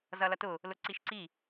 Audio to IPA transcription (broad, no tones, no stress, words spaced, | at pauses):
zʌlʌtʊ | lʊǀiʃǀi